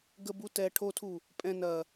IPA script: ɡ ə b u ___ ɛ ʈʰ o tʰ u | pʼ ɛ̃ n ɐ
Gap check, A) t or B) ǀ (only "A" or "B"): A